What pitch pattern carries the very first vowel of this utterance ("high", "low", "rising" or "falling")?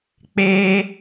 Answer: high